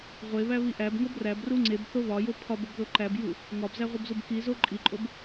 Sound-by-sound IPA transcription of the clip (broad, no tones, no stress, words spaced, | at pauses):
ʁʷeβæ βiʔæb ŋobræb ruŋ͡ǀeb θoβɒjo pʰɒbobðo ǃæb ju | ŋɒbzæʁʷibzub kizo ǃʼiǃʼob